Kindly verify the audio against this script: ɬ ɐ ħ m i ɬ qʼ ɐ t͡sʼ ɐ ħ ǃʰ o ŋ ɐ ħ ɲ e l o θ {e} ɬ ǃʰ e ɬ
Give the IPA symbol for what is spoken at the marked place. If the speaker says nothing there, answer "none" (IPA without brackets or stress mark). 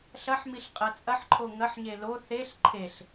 e